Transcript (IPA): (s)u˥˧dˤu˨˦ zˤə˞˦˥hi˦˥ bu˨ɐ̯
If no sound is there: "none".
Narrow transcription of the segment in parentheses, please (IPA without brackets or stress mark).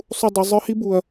sˤ